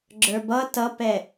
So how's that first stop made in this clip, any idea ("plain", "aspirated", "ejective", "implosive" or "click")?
click